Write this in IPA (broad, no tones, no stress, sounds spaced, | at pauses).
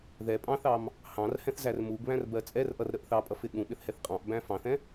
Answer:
ð ɛ pʼ ɑ̃ θ ɑ m | h ɑ̃ r h ɛ̃ θ z æ r m u ɡ β æ̃ r b ɜ t͡sʼ ɛ r ʔ ʌ r ɾ ə ʔ θ ɑ pʼ ʌ f ɪ ɠ ũ ɓ ɪ θ h ɛ θ qʼ ɑ̃ ʔ b æ̃ f ɑ̃ θ ɛ̃